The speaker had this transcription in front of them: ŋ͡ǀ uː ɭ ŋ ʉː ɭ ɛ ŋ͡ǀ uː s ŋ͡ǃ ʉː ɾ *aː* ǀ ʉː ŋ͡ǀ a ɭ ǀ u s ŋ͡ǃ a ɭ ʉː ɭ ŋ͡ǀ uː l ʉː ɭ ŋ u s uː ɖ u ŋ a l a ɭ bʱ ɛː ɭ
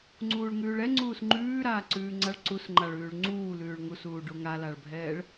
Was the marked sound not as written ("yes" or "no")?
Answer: no